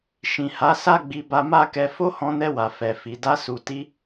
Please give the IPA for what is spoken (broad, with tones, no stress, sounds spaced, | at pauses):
ʃ ĩ˨ h a˨˦ s a˦ ɡ͡b i˧ b a˧ m a˦ k ɛ˧ f o˦ h ɔ̃˧ n ɛ˧ w a˨ f ɛ˨ f i˨ d a˧ s u˨ t i˧